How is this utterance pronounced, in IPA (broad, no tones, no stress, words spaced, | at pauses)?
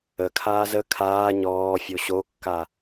əkʰaːz ə kʰaː ɲɔː fʲoɕokːa